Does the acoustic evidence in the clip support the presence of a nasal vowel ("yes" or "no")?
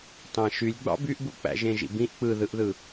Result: yes